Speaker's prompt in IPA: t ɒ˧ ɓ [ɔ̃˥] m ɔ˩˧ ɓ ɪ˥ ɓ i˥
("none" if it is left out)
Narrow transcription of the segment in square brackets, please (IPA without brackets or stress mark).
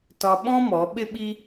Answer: ɔ̃˥